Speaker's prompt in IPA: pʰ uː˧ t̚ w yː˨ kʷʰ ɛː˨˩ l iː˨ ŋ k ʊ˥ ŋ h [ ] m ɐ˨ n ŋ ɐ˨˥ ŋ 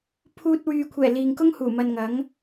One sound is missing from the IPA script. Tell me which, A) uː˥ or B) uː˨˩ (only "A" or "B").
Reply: B